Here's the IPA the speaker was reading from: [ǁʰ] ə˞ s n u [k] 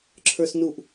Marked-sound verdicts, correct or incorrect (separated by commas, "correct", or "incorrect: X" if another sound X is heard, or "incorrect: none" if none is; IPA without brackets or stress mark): correct, incorrect: ʔ